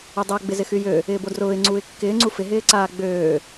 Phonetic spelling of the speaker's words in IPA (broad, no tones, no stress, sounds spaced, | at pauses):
o dˤ a ɡ͡b ɪ z ɪ x y j ø | ɪː b o d r ʊː ɪ̯ ŋ͡ǀ uː ɪ̯ kː ɪː ŋ͡ǀ u f ɪ ɦ ɪː ǀ aː ɡ͡b øː